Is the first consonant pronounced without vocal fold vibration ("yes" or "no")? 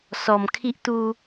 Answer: yes